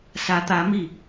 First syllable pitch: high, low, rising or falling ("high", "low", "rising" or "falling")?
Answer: rising